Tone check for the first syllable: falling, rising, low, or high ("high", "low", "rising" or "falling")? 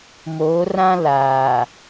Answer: rising